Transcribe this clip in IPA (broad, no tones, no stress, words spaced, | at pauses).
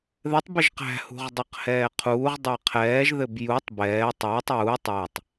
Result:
ðɘtˤ bɘʒqæ̤hṳʁ dˤaqhɛːqʰuːʁdˤæ qʰɛːʒðɘb jutˤ bɛː tˤɛːtˤ juː tˤætˤ